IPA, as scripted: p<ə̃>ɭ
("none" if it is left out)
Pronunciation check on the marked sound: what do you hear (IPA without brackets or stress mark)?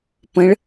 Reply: ə̃